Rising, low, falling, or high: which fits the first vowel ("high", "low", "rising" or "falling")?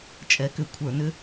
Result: rising